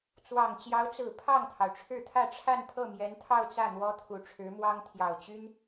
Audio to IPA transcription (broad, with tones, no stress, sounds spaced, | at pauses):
t͡s w ɑ˨˩ ŋ t͡ɕ j ɑ˧˥ ʊ̯ t͡s ɹ̩˨˩ pʰ ɑ˥˩ ŋ t̪ʰ ɑ˩ ʊ̯ ʈ͡ʂʰ ɻ̩˥˧ t̪ʰ ä˥˧ ʈ͡ʂʰ a˥˧ n pʰ ɤ˥˩ m j ɛ˧˥ n t̪ʰ ɑ˥˧ ʊ̯ t͡s ä˥˩ n̪ w ɔ˥ t̪ʰ u˨˩ ʈ͡ʂʰ ɻ̩˧˥ m w ɑ˥ ŋ t̪ʰ j ɑ˨˩ ʊ̯ t͡ɕ y˥ n